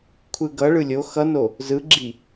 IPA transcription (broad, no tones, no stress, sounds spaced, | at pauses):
kʷʰ ɯ ɡ ʌ ɭ ɯ lʲ o x ʌ n o | z ɯ ɡ͡ǁ i